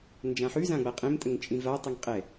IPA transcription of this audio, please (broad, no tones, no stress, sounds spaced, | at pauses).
n d͡ʒ ã ħ ʉ z ã ɡ͡b a qʼ ẽ m tʼ ə ŋ t͡ʃʼ ĩ v a tˤ ɨ ŋ qʼ ɛ